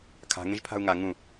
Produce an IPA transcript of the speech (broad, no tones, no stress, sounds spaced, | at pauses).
kʰ a̤ ŋ ẽ ʒ pʰ a̤ u̯ ŋ a ŋ ũ